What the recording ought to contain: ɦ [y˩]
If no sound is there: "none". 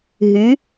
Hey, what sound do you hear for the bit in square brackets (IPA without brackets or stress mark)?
y˩˧